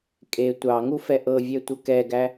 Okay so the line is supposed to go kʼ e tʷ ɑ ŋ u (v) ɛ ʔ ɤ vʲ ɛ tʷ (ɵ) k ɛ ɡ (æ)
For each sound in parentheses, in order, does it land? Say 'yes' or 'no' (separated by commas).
no, no, yes